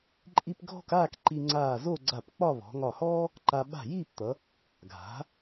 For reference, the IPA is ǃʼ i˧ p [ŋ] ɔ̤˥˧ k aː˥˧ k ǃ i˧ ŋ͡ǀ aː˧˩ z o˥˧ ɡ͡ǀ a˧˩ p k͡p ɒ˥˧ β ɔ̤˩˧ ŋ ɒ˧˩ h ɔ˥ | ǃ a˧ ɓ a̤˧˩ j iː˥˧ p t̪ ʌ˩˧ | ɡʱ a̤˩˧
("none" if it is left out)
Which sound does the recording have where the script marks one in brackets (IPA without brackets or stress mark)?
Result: ɡʱ